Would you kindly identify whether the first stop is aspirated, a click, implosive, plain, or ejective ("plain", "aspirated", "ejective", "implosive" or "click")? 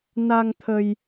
aspirated